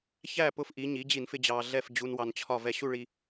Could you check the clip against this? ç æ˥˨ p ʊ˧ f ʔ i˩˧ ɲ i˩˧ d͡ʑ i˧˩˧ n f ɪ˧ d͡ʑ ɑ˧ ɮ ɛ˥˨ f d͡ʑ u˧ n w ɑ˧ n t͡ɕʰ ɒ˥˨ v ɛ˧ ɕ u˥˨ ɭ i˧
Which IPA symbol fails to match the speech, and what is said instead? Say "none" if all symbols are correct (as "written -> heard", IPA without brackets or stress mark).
none